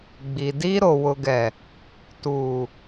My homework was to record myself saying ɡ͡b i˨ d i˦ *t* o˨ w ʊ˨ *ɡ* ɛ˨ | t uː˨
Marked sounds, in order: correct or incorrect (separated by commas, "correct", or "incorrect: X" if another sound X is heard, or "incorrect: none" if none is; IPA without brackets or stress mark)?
incorrect: ɾ, correct